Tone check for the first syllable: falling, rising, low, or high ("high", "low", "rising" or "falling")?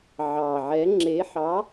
low